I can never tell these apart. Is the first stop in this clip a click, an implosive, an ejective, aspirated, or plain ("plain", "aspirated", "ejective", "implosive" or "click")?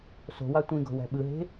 plain